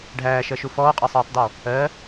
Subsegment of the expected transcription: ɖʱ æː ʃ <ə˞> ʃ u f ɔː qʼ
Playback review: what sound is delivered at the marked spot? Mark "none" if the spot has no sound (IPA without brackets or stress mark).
ɜ